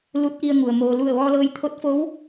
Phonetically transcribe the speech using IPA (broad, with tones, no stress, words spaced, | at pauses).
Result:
lu˧˥t̚ʔi˧ə̯ŋu˩ə̯ moː˩ lu˧˩ə̯ ʋɔː˧lɤː˧jt̪ʰo˧˥t̚foː˧˥w